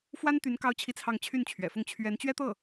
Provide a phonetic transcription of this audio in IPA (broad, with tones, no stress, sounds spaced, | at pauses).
f w a˥ n t̪ y˧˥ n k ɑ˥ ʊ̯ t͡ɕʰ i˥˧ t͡sʰ ɑ˥˧ ŋ t͡ɕʰ y˥˩ n t͡ɕʰ ɥ ɛ̰˨˩ f ʊ˥˩ ŋ t͡ɕʰ ɥ ɛ˧˥ n t͡ɕ ɥ ɛ˥ t̪ ɤ˥˩